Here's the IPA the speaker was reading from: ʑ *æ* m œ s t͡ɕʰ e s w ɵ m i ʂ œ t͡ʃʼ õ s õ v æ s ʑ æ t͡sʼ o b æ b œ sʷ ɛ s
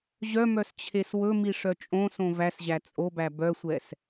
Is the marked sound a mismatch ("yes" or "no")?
yes